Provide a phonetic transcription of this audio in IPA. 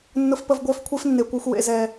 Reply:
nː ʊ˦ f p ə˦ v ɡʷ œː˦ f kʷʰ e˦ f nː e˨ kʷ œ˧ xʷ w ḛ˨ z ɛ˨

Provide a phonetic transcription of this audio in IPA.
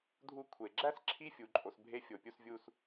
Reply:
dʱ u˦ kʷʰ e˩ ɡ͡ǁ æ˥ s ǁʰ i˦ fʲ u˩ ǃʼ o˩ s bʱ e˦ fʲ o˩ pʲ u˨ s vʲ u˨ s

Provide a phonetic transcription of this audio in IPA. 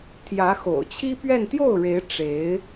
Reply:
t̪ʰ j ä˧˥ x o̰˨˩ ʊ̯ t͡ɕʰ i˥ p ɥ ɛ˥˧ n t̪ j o˥˩ ʊ̯ ɻ e˧˥ ɪ̯ ʈ͡ʂ e˧˥ ɪ̯

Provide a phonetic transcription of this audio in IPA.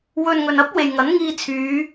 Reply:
w ɵ˨ n ŋ ɵ˨ n ɐ˥ p̚ w e˨ j ŋ ɐ˨˥ n ŋ iː˧ t͡sʰ yː˨˧

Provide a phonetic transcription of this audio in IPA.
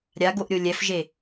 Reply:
ɾʲ a ɡ o ʔ ɾʲ o lʲ ɛ f ʒ e

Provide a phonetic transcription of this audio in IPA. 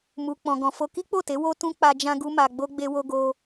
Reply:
m u˨ k͡p ɔ̃˨ ɡ ɔ̃˨ f o˧ k i˦ k͡p o˦˨ t e˨˦ w o˦ t ũ˦ k͡p a˧ d͡ʒ ã˦ ɡ u˦ m a˧ ɡ͡b o˦ ɡ͡b e˦ w o˦ ɡ o˦

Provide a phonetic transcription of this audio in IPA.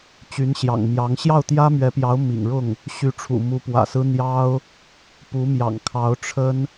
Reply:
t͡ɕ y˧˥ n ɕ j ɑ̰˨˩ ŋ m j ɑ˧˥ ŋ ɕ j ɑ˥˩ ʊ̯ t̪ j ä˥ m ɥ ɛ˧˥ p j ɑ˧˥ ʊ̯ m ḭ˨˩ ŋ ɻ ʊ˥˩ ŋ | ɕ y˧˥ ʈ͡ʂʰ ṵ˨˩ m u˧˥ p w ä̰˨˩ s ɹ̩˥ n̪ j ɑ˥ ʊ̯ | p u˧˥ m j ɑ̰˨˩ ŋ kʰ ɑ˧˥ ʊ̯ ʈ͡ʂʰ ə˥ n

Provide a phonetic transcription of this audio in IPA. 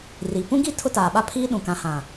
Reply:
r i˨ p ũ˦ ɡ i˦ tʰ ʊ˦ t aː˨ ɓ a˦ pʰ iː˦ ɗ ũ˨ k ã˨ h ã˨

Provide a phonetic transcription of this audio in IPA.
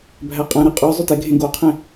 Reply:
bʱ æ qʼ ɛ̃ ɾ e qʼ ɔ zˤ ɵ t ɛ ɡʱ ẽ ɡ o qʰ ẽ

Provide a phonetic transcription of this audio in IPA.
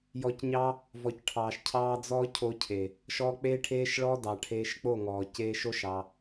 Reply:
j ɔ˨ c ɲ ɑ˧ | v ɔ˨ c ʈʰ ɑː˨ ʃ cʰ ɑː˦ d͡z ɔː˦ cʰ o˧ cʰ e˨ | ʃ ɔ˧ k͡p eː˦ ʈʰ eː˦ ʃ ɭ ɔ˦ d ɑ˨ ʈʰ eː˧ ʃ k͡p o˦˨ ŋ ɔː˨ c eː˧ ʃ o˦ ʃ ɑ˧

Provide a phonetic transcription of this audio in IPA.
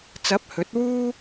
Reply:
t͡s ɐ˨˥ p̚ h ɵ˨˥ t̚ w uː˥

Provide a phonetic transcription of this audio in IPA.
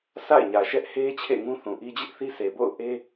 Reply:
s a̰˦˨ ɪ̯ ɲ ä˨ ʃ ɛ˦ ʔ h e˦ t͡ɕʰ ḛ˦˨ ŋ ũ˦ θ ũ˨ ʔ i˦ d͡ʑ ɪ˦ ʔ θ i˦ sʰ e˨ b o̰˦˨ ʊ̯ ʔ e˦

